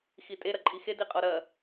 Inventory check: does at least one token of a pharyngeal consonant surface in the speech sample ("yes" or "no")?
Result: no